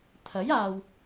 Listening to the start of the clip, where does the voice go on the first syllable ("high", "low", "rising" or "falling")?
rising